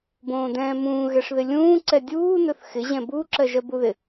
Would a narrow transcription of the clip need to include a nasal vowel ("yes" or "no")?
yes